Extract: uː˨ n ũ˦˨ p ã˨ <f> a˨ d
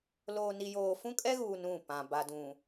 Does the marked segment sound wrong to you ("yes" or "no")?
yes